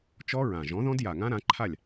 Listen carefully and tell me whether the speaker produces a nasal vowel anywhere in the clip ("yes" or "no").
yes